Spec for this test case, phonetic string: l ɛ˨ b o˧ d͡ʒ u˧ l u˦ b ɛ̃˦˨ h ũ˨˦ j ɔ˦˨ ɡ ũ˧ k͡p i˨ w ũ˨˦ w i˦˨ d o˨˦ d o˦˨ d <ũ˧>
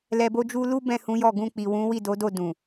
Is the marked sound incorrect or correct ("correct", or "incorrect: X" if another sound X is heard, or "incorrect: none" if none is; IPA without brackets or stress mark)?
incorrect: ũ˨